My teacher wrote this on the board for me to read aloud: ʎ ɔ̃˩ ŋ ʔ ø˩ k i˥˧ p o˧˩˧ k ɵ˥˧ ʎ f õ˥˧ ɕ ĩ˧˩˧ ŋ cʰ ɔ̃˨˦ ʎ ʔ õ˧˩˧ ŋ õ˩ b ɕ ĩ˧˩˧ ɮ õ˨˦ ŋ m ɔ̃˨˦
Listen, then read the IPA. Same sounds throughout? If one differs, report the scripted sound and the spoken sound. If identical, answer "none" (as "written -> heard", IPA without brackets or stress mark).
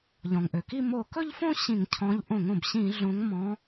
p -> m